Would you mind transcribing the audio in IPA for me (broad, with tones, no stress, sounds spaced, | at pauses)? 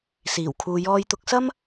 s iː˨˩ w kʰ uː˨ j ɔː˧ j t̪ ʊ˧ k̚ s ɐ˥ m